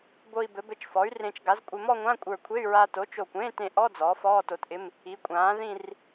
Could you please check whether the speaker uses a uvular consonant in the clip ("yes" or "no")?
no